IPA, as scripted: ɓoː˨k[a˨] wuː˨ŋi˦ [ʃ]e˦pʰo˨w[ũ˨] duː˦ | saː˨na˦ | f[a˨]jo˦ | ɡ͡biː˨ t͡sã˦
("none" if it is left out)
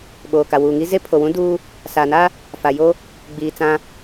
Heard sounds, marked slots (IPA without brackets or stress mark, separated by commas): a˨, z, ũ˦, a˨